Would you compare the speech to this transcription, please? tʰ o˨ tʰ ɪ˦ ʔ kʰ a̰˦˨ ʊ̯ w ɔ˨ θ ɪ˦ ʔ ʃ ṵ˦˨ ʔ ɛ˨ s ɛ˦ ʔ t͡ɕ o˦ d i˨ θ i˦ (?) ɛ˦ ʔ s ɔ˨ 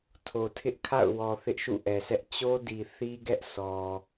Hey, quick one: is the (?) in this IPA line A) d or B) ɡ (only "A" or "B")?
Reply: B